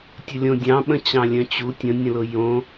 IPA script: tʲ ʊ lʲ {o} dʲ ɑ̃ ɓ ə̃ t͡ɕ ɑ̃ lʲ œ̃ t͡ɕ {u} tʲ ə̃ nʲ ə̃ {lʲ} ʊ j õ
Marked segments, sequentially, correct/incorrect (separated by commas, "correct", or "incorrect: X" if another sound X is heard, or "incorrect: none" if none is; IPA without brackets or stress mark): incorrect: õ, correct, incorrect: l